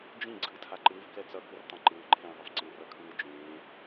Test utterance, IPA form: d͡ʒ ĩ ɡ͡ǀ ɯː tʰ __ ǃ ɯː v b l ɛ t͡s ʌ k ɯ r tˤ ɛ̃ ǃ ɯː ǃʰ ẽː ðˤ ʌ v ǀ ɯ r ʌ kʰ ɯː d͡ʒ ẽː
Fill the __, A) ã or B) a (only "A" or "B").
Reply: B